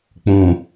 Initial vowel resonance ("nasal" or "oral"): nasal